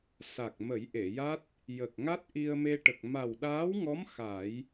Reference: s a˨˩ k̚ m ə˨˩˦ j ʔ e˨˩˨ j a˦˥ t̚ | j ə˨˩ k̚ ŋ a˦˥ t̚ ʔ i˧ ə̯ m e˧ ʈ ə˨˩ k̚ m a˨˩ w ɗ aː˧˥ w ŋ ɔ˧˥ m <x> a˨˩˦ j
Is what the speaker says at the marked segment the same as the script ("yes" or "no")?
yes